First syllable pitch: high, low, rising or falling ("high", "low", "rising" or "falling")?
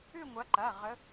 falling